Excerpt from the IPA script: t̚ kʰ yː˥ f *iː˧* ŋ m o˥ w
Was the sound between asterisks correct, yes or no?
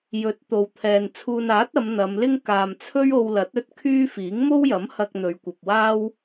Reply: no